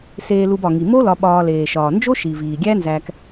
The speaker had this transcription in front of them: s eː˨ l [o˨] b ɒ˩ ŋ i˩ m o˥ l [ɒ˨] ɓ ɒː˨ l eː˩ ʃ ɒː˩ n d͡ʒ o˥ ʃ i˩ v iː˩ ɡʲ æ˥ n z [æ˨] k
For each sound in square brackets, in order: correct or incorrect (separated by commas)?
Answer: incorrect, correct, correct